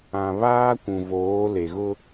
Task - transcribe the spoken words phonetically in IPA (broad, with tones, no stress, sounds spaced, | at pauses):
ã˨ β aː˦ kʷ ũ˨ v oː˨˦ l e˨ ɣ ʊ˦